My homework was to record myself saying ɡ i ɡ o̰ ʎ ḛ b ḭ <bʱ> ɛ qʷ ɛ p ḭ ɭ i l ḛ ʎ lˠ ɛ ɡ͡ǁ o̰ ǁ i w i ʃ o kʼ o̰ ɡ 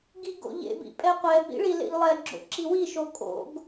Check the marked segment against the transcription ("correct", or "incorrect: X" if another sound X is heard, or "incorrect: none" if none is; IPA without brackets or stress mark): incorrect: pʼ